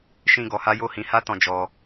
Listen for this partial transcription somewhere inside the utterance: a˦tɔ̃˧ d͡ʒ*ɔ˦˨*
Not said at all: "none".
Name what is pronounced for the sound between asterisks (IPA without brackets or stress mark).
ɔ˧